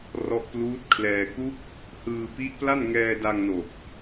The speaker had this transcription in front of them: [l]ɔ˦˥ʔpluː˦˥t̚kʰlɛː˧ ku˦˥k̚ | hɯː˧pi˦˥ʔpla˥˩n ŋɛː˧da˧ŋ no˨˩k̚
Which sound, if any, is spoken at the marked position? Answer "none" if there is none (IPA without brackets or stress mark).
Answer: r